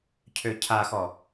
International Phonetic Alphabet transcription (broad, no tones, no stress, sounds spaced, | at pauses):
cʰ ø cʰ a x ɔ